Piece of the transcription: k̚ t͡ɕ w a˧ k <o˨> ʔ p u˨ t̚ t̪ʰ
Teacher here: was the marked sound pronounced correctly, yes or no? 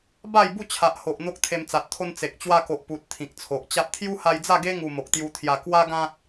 yes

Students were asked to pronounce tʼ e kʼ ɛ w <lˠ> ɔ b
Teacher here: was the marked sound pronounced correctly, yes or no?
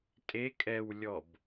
no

